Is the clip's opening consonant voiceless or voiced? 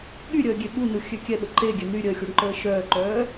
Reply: voiced